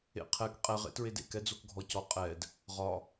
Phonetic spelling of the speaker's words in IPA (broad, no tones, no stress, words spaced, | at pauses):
ḛqʰɛk qʼɛʁ ḛtɹedḛk ɛd͡zokɡʱɔcɔ qʼɛd | ʁɒ